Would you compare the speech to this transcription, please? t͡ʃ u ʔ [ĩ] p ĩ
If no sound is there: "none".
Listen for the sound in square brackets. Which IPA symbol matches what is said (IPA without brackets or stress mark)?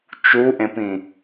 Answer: ẽ